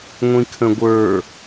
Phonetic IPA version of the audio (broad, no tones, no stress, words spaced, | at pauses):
ŋʷĩkʰə̃ɡʷə˞